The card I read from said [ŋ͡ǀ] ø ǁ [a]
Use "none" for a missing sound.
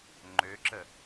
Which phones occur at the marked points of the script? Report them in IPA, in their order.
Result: ŋ͡ǃ, ə

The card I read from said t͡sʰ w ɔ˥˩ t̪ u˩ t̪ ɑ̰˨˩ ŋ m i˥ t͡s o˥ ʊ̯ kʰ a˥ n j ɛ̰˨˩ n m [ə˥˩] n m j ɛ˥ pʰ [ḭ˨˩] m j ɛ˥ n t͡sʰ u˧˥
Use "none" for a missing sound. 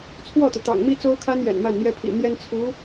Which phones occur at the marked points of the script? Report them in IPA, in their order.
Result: a˥˩, ḭ˨˩

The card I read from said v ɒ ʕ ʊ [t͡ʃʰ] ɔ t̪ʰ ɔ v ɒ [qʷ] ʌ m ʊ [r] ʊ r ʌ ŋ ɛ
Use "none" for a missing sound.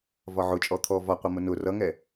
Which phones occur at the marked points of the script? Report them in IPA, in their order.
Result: t͡ʃʼ, qʷ, n

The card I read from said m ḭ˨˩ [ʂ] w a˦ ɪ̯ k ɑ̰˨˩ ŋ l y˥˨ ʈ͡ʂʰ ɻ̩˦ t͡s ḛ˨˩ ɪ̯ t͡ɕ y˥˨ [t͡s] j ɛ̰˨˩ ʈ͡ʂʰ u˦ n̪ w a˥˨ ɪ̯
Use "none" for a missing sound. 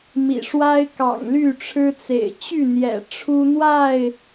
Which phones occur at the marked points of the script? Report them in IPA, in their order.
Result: ʂ, n̪

